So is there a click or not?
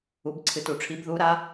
yes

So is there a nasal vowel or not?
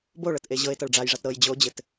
no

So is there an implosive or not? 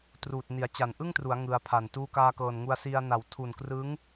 no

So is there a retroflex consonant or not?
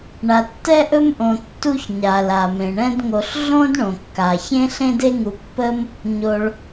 yes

